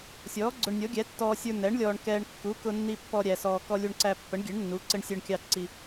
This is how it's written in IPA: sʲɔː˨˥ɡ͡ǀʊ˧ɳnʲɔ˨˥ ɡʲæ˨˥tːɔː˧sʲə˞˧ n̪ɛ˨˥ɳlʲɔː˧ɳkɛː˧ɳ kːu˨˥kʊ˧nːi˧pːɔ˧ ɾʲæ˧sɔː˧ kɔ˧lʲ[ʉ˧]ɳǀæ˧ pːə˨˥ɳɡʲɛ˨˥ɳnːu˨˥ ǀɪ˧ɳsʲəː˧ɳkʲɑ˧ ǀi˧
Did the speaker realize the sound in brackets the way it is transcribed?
no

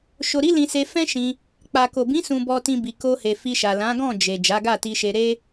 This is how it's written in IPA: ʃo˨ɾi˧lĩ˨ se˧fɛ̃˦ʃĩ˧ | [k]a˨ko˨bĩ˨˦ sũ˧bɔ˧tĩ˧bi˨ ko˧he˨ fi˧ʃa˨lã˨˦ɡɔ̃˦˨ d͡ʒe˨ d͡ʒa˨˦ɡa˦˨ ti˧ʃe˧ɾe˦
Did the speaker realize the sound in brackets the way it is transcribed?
no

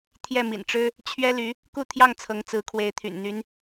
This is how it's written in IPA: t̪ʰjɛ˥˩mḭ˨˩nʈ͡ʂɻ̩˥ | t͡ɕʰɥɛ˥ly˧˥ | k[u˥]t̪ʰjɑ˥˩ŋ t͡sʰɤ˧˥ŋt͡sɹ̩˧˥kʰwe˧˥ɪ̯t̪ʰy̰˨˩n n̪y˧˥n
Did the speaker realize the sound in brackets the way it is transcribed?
no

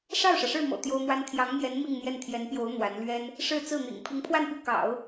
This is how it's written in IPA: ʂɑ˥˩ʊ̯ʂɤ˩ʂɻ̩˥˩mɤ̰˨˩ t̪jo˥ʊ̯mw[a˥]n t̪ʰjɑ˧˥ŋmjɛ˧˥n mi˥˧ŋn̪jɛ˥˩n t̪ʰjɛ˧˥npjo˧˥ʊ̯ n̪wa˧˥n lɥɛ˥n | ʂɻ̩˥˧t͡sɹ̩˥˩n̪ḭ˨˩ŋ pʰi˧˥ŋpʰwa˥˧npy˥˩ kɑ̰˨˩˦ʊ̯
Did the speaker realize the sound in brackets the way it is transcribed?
yes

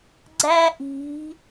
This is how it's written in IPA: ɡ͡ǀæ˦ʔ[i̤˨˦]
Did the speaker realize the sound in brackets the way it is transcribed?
yes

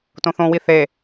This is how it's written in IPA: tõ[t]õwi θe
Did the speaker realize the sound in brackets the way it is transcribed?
no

